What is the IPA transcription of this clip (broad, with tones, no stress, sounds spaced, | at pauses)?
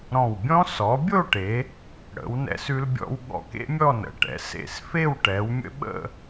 ɾ ɔ̃˧˩ w bʲ ɔ̃˥ s ɔ˩˧ bʲ o˥˧ ʈ e˩˧ | ɽ ə̰˩˧ w n ɛ̰˧ s ʉ˧ l bʲ ɔ̰˧ w ɠ ɔ̰˧˩ k ḛ˥ mʲ ɔ˥˧ n ə̰˩˧ ʈ ɛ̰˩˧ s ḛ˧˩ s f e˥˧ w ʈ ɛ˩˧ w mʲ ə̰˥ ɓ ə̰˥˧